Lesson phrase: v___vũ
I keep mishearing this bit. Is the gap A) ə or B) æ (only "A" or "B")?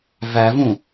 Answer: B